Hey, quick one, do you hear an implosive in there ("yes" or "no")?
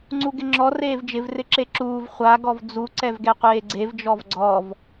no